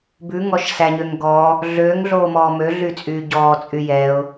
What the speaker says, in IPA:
b ʉ ŋ ɔ ʃ s æ ɲ ø ŋ ɡ ɔ | ɮ øː ŋ ɮ oː m ɔː m ø ɮ y t͡sʼ yː ɟ ɔː t͡sʼ y j ɛ ʊ̯

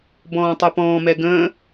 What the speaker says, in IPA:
b ɔ̃ː tˤ ɵ p ɔ̃ː m ɛ ɡ ə̃ː

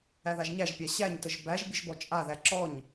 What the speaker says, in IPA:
æ ð a ʒ ɲ æ ʒ pʲ a ɕ æ ɲ t ə ʒ b æ ʒ bʲ ə ʒ b ɔ t͡ʃʼ a ð æ ǁ ɔ ɲ

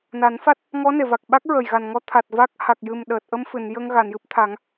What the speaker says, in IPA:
n a˨˩˦ n f a˦˥ t̚ | ŋ ɔ˧˥ n e˨˩˨ v a˨˩ k̚ ɓ a˦˥ k̚ ɹ ə˨˩ j ɣ a˨˩ n ŋ ɔ˧˥ t̪ʰ a˨˩ t̚ v a˦˥ k̚ h a˨˩ k̚ j ɨ˨˩ m ɗ əː˨˩ t̚ ʔ ə˧ m f ɨ˨˩˨ n j ə˧ ŋ ɣ a˨˩˨ n j ɨ˦˥ p̚ t̪ʰ a˨˩˦ ŋ

